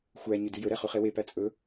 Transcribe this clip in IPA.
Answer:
xʷ æ ɲ ʉ d ʉ j ɵ ɾ ɛ χ ʉ χ e w e p æ t͡sʼ ɵ

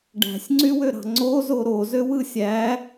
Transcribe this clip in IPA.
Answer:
ɖ æ̤ sʲ ŋ͡ǀ y w ø ɾ ɑ̤ ŋ͡ǀ o z o ɾ o z ø w ɯ sʲ æ

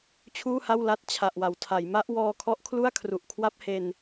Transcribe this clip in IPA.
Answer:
t͡ɕʰ uː˥˩ h a˥˩ w l a˥˩ t̚ t͡ɕʰ a˨˩ ʔ w a˩˦ w tʰ a˩˦ j m a˦˥ ʔ w ɔː˧ kʰ ɔ˦˥ ʔ kʰ l u˥˩ a̯ kʰ r u˨˩ ʔ kʰ w a˥˩ p̚ h e˧ n

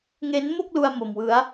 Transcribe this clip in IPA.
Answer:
ŋ e˦˥ n m o˥˩ k̚ l u˧ a̯ m o˧ m w ɯ˦˥ a̯

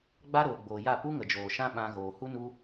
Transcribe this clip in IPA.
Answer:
ɡ͡b a˦ ɾ oː˨ ɡ͡b oː˨ j a˦˨ p u˦ ŋ ə˨ d͡ʒ oː˨ ʃ ã˦ ɓ ã˧ ɣ oː˨ h u˦ n u˦

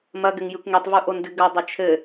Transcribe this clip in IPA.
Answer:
m ɐ ɡ ɘ ŋ j ɨ kʷ ŋ i tˤ v u ʔ o n d ɨ ɡ ɐ dˤ e t͡ʃʰ ɘ

